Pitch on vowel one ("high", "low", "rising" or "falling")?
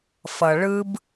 low